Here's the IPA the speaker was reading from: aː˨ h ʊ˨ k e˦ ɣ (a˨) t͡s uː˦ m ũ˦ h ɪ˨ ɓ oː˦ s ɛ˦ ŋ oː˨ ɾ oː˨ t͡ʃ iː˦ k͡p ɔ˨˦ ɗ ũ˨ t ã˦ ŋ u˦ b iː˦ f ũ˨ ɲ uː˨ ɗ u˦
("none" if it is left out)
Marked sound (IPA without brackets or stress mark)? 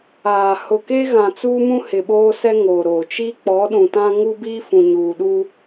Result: ã˨